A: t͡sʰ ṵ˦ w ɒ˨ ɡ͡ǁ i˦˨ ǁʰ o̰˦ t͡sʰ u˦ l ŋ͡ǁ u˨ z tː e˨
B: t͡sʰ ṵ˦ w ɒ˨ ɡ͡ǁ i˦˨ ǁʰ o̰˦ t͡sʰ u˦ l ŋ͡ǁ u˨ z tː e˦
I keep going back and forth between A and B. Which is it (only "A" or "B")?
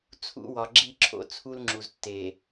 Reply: A